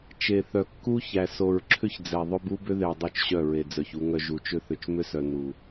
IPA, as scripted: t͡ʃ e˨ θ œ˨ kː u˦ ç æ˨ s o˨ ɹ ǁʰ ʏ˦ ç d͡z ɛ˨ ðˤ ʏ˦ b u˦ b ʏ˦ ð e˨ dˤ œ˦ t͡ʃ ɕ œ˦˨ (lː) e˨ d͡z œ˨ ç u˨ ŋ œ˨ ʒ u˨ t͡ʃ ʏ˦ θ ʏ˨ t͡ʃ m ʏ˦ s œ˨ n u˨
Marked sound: incorrect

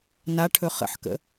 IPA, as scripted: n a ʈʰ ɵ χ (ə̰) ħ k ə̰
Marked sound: correct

